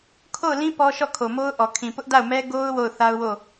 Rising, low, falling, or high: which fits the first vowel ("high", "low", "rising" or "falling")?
falling